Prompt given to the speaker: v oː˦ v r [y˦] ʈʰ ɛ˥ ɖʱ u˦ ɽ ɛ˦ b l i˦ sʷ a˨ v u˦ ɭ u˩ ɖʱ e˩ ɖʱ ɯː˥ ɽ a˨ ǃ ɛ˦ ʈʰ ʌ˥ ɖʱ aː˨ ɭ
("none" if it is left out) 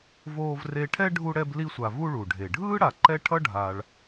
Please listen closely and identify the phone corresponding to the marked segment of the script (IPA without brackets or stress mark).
e˦